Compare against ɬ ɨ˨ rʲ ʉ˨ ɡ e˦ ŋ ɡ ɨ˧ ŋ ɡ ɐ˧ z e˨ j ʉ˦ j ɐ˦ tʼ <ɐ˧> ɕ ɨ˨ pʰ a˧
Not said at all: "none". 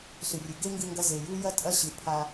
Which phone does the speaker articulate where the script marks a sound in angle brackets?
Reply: ɐ˦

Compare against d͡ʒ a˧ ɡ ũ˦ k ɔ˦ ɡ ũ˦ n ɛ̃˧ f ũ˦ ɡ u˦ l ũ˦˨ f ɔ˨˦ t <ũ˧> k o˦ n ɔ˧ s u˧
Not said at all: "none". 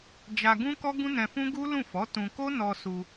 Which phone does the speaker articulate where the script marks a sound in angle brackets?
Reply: ũ˧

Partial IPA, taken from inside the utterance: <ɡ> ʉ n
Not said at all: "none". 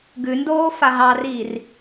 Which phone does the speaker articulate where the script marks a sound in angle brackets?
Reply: ɡ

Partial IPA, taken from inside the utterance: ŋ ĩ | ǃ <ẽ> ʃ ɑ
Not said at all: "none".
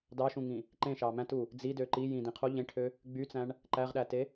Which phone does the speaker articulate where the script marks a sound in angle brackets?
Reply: ẽ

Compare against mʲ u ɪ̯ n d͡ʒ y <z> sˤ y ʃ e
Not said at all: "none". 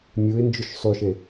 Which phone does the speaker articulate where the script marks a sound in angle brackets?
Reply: ʃ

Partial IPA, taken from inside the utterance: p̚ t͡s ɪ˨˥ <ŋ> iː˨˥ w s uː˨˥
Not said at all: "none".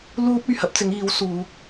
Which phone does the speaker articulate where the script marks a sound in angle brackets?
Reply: ŋ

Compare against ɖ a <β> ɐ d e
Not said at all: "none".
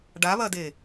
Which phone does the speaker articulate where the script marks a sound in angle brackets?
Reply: β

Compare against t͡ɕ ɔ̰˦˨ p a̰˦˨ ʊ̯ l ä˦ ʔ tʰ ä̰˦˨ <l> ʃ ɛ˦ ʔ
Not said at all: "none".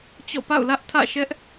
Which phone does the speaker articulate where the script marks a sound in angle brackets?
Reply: none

